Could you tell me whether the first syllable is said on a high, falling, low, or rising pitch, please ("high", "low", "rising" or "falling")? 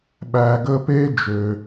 low